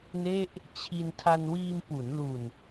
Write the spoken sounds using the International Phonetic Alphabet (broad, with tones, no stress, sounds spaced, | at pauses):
n e˥˩ ʔ | t͡ɕʰ i˧ n tʰ a˧ n w iː˧ m p u˩˦ n l u˨˩ n